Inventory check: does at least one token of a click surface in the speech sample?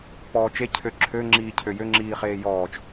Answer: yes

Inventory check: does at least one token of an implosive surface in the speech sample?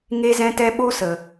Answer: yes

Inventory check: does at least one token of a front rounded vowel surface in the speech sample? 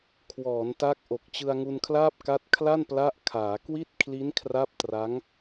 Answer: no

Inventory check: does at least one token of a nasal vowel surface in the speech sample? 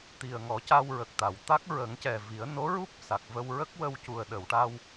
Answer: no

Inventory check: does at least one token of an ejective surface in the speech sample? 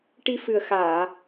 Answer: no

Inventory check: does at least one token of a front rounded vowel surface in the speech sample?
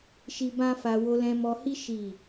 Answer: no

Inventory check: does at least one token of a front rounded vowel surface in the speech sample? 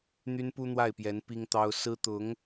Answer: yes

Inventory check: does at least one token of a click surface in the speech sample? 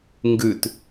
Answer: no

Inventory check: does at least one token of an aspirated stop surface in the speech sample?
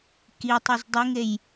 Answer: no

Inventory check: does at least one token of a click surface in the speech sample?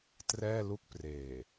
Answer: no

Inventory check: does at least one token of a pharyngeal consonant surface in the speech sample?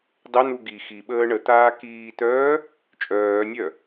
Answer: no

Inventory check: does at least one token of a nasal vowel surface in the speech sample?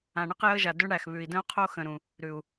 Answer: yes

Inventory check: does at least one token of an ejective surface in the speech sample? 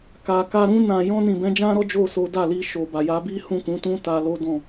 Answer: no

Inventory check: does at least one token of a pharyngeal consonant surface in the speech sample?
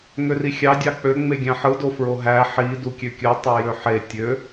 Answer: yes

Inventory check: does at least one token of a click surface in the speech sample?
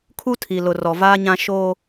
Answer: no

